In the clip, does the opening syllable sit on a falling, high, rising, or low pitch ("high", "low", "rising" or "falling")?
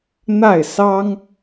falling